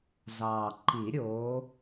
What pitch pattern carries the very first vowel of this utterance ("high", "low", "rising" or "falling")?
low